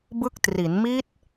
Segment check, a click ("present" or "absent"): absent